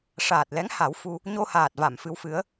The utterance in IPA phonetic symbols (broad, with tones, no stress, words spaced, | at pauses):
ʂaː˨˩t̚lɛ˧˥ŋha˨˩˦w fu˧ | ɲo˧haː˨˩t̚va˨˩˨m fɨ˧˥wfɨ˧˥ə̯